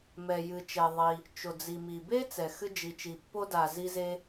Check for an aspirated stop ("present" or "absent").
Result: absent